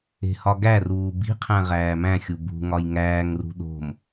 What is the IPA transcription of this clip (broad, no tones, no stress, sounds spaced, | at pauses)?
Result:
e̤ h ɒ ɡ æ r uː b i̤ qʰ æ̃ ʁ æː m æ̃ xʲ u b ṳ ŋ ɒ j ŋ æː ŋ r ṳ ɗ o̤ m